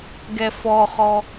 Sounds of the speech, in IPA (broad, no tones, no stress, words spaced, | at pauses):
ɡɛfɔχɔ